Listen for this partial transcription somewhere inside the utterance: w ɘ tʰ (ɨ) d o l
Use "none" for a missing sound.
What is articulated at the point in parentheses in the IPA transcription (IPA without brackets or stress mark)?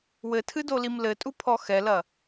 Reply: ɨ